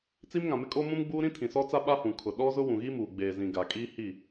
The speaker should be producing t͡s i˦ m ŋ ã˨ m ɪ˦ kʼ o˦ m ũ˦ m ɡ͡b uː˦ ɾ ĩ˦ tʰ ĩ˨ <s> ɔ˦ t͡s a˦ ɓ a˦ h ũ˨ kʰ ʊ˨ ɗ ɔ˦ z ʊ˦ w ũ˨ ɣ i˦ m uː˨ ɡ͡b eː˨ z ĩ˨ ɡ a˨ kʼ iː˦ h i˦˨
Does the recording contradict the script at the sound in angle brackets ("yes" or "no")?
no